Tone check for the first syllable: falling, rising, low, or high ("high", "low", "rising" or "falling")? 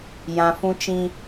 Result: low